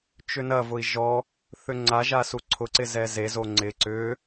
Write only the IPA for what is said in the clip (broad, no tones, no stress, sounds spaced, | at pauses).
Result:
t͡ʃ ʏ n ɐ v ʊ i̯ ʒ ɔ | θ ʏ ŋ͡ǀ a ʒ a s u ǀʰ ʊ ǀ ɪ z ɛ z e z o ŋ͡ǀ ɪ ǀ ʏ